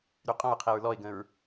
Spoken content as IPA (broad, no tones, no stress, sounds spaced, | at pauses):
ɾ y qʼ ɔ̃ ɹ qʰ e ɹ l ɔ ɪ̯ ɡ ə̃ ɹ